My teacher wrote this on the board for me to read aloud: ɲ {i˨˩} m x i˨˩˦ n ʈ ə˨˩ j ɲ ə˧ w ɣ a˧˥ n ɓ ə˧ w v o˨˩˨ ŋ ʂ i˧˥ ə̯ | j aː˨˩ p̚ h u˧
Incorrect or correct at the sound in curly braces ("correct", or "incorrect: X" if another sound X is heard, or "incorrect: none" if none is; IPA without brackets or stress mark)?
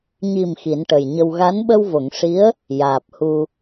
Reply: correct